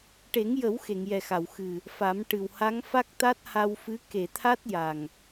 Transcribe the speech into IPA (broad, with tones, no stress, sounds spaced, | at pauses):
ʈ e˨˩˦ ŋ j ə˨˩˦ w x e˨˩˨ ŋ j ɛ˨˩ x a˨˩˨ w x ɨ˨˩ | f a˨˩˦ m ʈ ɨ˨˩ w h a˧˥ ŋ f a˦˥ k̚ t̪ a˦˥ t̚ h a˧ w f ɨ˧˥ k e˨˩˨ t̪ʰ a˦˥ t̚ j a˨˩ ŋ